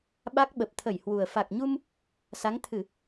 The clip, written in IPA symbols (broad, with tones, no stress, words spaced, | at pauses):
ɓa˦˥k̚ɓə˨˩p̚t̪ʰə˧˩jhwu˨˩ə̯ fa˨˩k̚ɲu˧m | sa˨˦ŋt̪ʰɨ˧˩˨